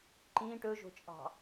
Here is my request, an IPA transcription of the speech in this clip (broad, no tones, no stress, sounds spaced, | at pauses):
ǃ ĩ ʈ ɵ ʒ o̤ t͡ʃʼ ɑ̤